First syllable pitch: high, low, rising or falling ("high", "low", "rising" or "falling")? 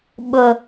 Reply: low